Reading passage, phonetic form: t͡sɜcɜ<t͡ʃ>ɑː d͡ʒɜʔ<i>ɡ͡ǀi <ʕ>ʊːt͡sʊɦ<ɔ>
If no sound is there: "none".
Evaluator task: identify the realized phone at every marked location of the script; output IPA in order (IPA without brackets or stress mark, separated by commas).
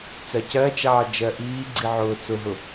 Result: t͡ʃ, iː, ʕ, ʊ